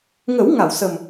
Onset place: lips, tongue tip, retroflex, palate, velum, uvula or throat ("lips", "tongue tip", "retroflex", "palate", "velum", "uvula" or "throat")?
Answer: velum